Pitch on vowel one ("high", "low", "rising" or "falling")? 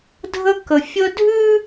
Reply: high